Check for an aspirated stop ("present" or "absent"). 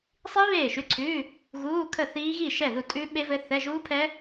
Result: present